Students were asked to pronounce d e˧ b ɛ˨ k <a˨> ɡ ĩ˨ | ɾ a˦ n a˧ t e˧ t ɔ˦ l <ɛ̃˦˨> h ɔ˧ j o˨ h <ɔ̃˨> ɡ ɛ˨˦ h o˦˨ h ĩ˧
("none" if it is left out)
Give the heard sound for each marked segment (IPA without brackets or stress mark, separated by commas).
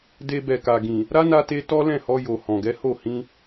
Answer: a˨, ɛ̃˦˨, ɔ̃˨